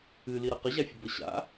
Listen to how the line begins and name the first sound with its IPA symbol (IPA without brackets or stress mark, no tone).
ɨ